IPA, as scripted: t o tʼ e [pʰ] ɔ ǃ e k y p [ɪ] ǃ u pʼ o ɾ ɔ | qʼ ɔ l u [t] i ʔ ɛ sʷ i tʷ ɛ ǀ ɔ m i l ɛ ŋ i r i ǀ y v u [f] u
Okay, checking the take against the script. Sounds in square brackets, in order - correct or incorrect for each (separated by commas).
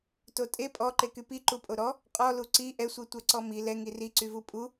incorrect, incorrect, incorrect, incorrect